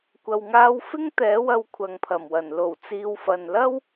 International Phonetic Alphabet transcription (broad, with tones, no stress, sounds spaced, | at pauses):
kʷ ɐ˨ w ŋ aː˧ w f ɪ˥ ŋ t̪ ɛː˨˥ w ɐ˧ w kʷʰ ɐ˨ ŋ pʰ ɐ˨˩ m w ɐ˨˩ n l o˨˩ w t͡s iː˨ w f ɐ˨ n l ɐ˥ w